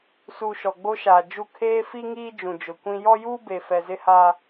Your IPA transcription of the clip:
su˨ ʃɔ˨ɡ͡bo˦ʃaː˨d͡ʒu˦˨ kʰeː˦fi˦ŋiː˦ d͡ʒũ˨d͡ʒʊ˨kʷĩ˦ jɔ˦juː˦ be˨fɛ˨zɪ˦ha˦

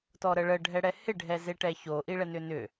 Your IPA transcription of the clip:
tɔɾəɭə ɖʱɛɽɛhɪ ɖʱɛzeʈɛço ʔiɭɛnʏnʏ

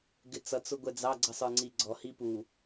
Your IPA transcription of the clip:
ɡɪt͡sʌ t͡sʊɡʷɛd͡zɑ ɡ͡ǀʌsˤə˞ŋ͡ǀiɡ͡ǀɔ hipu

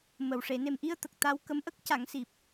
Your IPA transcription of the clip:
mə˨˩w ʂe˨˩˨ne˨˩mʔi˧ə̯ t̪ə˨˩k̚ t̪a˧w kə˧˥mʔə˦˥k̚ ca˨˩˦ŋsi˨˩p̚

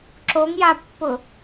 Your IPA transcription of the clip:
ǁoŋjapːʊ

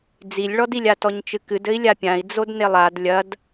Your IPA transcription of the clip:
d͡zilʲɭɔdilʲa tɔɲt͡ʃɨkɨdɘi̯ lʲapʲãi̯ d͡zodnelˠad lʲɐd

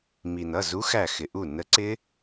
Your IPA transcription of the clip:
mi˩nʌ˩˧˩ zu˨˥xæ˧˩ xɪ˩ʔu˧˩ nə˨˥ ǀɪ˦˥

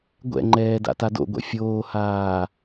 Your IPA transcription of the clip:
ɡʷɛ̰ŋ͡ǃɛː da̰tado̰ɡʷɛ̰ fʲoːhaː

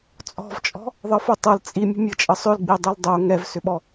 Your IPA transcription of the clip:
t͡sʼɔ̤vt͡ʃʼɔ̤ | ðˤɤfotˤɤl t͡sʼimʲə̤ mʲɤt͡ʃʼəsˤʏlɡ͡bi dˤildˤo ŋɛvsʏɓɔ

